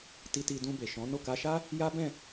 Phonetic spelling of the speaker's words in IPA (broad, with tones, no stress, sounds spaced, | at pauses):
t i˧ t i˧ d ũ˧ b e˨ ʃ ɔ̃˨˦ n o˦˨ k a˧ ʃ a˦ | j a˦ b ɛ̃˦˨